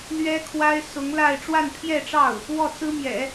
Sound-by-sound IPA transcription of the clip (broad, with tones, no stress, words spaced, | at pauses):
lɥɛ˥kʰwa˥ɪ̯ sʊ˧˥ŋla˥˧ɪ̯ ʈ͡ʂwa˥˧npʰjɛ˥˧ʈ͡ʂɑ˥˩ʊ̯ | wɔ˥˩t͡sɹ̩˥mjɛ̰˨˩˦